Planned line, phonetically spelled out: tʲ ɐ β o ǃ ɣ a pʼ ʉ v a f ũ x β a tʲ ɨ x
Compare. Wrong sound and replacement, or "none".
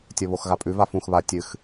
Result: ǃ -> x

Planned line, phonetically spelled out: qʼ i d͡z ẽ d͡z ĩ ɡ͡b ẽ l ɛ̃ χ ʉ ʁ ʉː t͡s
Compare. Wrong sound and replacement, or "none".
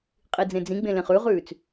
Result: ɛ̃ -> ẽ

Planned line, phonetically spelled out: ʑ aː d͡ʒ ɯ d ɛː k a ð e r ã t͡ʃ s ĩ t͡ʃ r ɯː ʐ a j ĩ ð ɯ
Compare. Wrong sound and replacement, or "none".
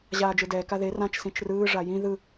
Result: none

